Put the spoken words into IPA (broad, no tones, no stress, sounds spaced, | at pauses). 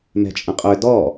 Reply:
m ɛ̤ t͡ʃʼ ə̃ qʼ ø d ɔ